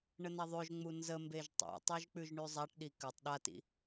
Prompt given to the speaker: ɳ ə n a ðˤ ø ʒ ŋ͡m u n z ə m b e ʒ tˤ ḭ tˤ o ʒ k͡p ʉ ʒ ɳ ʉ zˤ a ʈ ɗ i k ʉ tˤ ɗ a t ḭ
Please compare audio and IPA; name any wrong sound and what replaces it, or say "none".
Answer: none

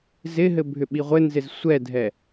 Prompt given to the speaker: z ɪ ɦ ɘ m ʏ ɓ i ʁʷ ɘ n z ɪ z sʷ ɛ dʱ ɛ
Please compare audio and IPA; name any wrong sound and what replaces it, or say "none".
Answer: m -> bʱ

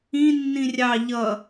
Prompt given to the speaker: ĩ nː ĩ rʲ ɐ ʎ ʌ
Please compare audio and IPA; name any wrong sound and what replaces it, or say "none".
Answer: ɐ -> ɑ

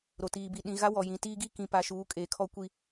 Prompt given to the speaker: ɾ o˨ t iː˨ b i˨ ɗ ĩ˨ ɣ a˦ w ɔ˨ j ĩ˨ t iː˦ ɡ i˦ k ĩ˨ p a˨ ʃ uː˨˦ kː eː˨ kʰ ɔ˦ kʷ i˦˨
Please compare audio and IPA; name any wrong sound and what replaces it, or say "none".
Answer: kː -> kʼ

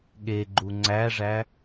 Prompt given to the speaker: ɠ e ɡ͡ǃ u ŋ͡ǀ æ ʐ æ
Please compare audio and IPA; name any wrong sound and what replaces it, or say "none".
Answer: none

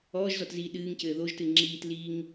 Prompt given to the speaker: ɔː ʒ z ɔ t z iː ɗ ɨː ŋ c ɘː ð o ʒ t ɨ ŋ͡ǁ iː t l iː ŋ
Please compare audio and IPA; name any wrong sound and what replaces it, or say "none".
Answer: none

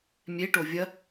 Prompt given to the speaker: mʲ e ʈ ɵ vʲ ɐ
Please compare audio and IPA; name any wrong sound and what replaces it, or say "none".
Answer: ɵ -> o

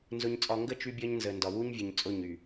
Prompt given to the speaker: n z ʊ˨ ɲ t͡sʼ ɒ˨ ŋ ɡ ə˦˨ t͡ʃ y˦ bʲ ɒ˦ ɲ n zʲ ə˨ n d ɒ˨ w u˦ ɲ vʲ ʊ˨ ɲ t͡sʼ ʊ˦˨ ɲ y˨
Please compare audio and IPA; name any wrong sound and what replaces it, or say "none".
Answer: zʲ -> z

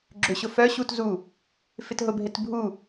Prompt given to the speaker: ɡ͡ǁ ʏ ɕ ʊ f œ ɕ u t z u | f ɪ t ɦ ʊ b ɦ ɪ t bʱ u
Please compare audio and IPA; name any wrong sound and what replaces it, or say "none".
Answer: none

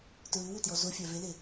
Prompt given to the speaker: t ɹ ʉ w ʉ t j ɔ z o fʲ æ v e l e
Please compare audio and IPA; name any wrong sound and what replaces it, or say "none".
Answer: none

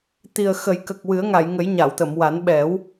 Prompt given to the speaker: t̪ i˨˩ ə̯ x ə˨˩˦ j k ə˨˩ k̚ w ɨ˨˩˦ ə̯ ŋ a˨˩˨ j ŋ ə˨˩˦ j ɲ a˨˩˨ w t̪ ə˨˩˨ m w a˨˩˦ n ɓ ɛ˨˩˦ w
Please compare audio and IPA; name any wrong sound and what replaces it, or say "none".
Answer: none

